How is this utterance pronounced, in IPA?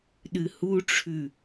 ɗ ɨ h u ʈ͡ʂʰ ʉ

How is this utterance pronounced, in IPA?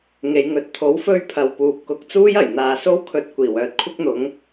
ŋ e˨˧ j ŋ ɵ˨˥ t̚ t̪ʰ o˨˥ w f ɵ˧ ɥ pʰ ɐ˨ w p uː˨ p̚ k ʊ˨ k̚ t͡s uː˥ j ɐ˨˩ j n̪ aː˨ s o˥ w kʰ ɵ˧ t̚ kʷ iː˨˩ w œː˧ t̚ kʷʰ ɪ˥ k̚ n̪ ʊ˨˥ ŋ

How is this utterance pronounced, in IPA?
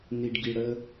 n i˧ ɖ ɡ i˧ ɽ ə˦

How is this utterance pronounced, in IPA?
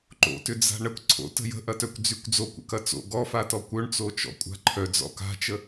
ǃ o̰ t ʏ d͡z a̤ ɳ ə kʷ ǀʰ o̰ t ə̤ j ə̤ ʔ ɐ t œ kʷ d͡z y kʷ d͡z o kʷ ə̰ k ɐ t͡s o̰ ɡ ɔ f a t ɔ kʷ œ ɳ t͡s o t͡ʃ ɔ̰ kʷʼ a̤ ǃʰ œ d͡z ɔ̰ k a̤ t͡ʃ ə

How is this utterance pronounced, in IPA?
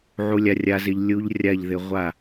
ʕ u˧ lʲ a˧ rʲ a˧ z ɪ˧ ʎ lʲ u˧ ʎ rʲ a˦˨ ʎ ð ɪ˧ ʁʷ a˦˨

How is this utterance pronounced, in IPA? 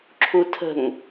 ǁʰ u tʰ ə̤ ŋ

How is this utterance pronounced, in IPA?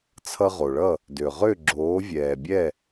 t͡sʰ ʌ˧ ʁ o˨ ɭ ʌ˦˨ | d ø˨ ʁ ø˦˨ ɡ͡ǁ oː˨˦ vʲ ɛː˨ bʲ ɛ˦˨

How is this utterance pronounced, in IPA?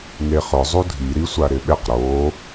ŋ e χ ʊ zˤ u dʱ i ɾ i sʷ a ɾ ɪ ɓ ɪ q ɾ o

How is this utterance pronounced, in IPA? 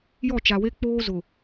j ɔ˦˨ t͡ʃ a˨ w e˦ k͡p oː˦ z ʊ˨

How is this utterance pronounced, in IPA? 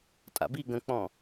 tʼ a̰ b i ɡ ə̃ k͡p ɔ̃

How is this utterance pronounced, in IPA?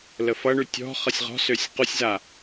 l ə f ʌ ɳ ʉ tʲ ɔ̤ χ ʌ sʲ ʁ ɔ̤ s ø sʲ q u sʲ z a

